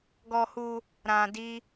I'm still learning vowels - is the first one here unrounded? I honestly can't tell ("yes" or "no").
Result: no